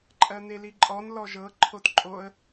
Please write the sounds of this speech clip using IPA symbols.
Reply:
ǃʼ ɜ n̪ e l i ǃʼ ɔ n l ɔ ʒ ɤ ǃʰ o t ǃʼ o ə̯

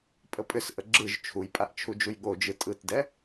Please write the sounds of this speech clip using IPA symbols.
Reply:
pʼ ə pʼ ʏ s ʔ ə ɡ͡ǁ ɯ ʒ t͡ʃʰ u j pʼ a ʔ t͡ʃʰ u d͡ʒ u j ɠ o d͡ʒ ɯ tʼ ɯ t d ɛ

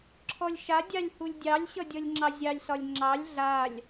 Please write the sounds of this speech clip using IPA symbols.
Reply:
ǁʰ ɔ lʲ ʃ a dʲ ɑ lʲ h u lʲ dʲ ɑ lʲ ɕ ʌ dʲ ʌ lʲ ŋ͡ǁ ɑ zʲ ɑ lʲ s ɒ lʲ ŋ͡ǁ ɑ lʲ ɮ a lʲ

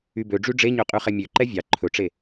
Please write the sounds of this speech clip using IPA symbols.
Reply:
y b ø ɖ͡ʐ y ɖ͡ʐ e ɲ ø qʼ y χ ɛ mʲ ø ǃ ɛ vʲ ɑ ǃʰ ɵ ʈ͡ʂ e

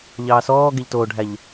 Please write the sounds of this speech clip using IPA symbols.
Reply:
ʎ ɑː s ɔː ɡ e ʎ t oː ɖʱ æ ʎ

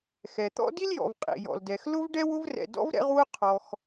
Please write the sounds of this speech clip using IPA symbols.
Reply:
x ɛ˩ t̪ ɔ̰˥ d i˥ l j ɔ̰˩ v qʼ ḭ˩ j ɔ̰˩ l d ɛ˩ x l ʊ˥ v ɖ ɛ˥ w ʊ˥ v r ɛ̰˩ d ɔ̰˥ v ɾ ɛ̰˥ ʁ w ʊ˥ qʰ ɔ˩ x

